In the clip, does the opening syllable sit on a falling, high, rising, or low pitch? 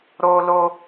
high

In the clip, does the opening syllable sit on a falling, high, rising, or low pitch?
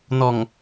low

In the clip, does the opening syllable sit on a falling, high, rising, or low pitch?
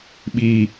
high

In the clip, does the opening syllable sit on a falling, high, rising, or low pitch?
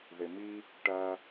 low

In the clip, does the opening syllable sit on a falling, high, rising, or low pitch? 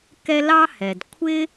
high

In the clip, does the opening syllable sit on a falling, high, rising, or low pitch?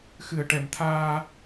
low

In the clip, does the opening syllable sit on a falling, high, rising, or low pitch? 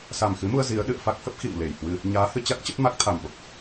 low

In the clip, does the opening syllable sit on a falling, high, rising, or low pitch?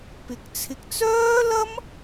rising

